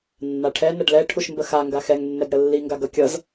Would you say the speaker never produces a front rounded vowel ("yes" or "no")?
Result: yes